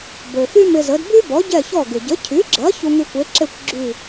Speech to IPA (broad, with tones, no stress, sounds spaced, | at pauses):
b ø˩ f y˥ m ɪ˧ z ə˩˥ d b y˥ b ɔ˩˥ ɟ ɛ˥˩ ç ɔ˥˩ ɡ ɪ˩ ɟ ə˩˥ cʰ y˩˥ ɡ͡ǁ ɐ˩˥ ç u˧ ŋ y˧ kʷ e˩˥ ǁ e˥˩ kʷ ɡ͡ǁ y˥˩